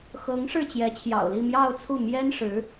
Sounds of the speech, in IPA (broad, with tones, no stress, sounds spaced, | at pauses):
x ɤ˧˥ ŋ ʂ ɻ̩˥˩ t͡ɕ j ɛ˧˥ t͡ɕʰ j ɑ̰˨˩ ʊ̯ l i˥˧ m j ɑ˥˧ ʊ̯ t͡sʰ u˥˩ m j ɛ˥ n ʂ ɻ̩˧˥